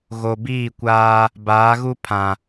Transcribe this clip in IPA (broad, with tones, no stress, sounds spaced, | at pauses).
ɣ o˨ b iː˦˨ kʷ aː˦ | b aː˨˦ ɣ u˦ pʰ ã˨